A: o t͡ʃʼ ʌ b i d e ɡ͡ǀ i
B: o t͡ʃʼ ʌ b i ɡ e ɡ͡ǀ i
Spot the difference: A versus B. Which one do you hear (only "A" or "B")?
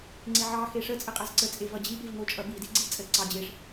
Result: A